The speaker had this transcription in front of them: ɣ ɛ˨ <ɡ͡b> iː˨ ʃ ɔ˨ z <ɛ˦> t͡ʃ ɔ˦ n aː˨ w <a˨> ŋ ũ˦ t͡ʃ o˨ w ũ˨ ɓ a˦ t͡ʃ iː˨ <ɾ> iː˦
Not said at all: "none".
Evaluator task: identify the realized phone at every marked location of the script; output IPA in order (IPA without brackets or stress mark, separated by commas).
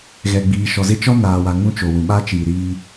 ɡ͡b, ɪ˦, a˨, ɾ